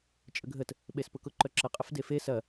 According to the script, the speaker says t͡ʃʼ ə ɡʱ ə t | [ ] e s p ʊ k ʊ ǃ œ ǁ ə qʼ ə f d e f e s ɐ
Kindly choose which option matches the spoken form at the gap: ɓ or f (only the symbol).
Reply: ɓ